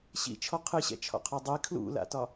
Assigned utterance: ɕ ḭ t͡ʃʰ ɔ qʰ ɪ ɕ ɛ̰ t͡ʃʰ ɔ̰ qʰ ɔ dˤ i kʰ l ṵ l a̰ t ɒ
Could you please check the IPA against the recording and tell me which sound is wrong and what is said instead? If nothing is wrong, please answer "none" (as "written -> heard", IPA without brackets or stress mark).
ɪ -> ɨ